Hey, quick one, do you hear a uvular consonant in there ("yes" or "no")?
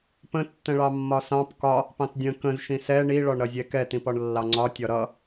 no